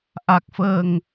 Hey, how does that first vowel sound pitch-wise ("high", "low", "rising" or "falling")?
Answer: low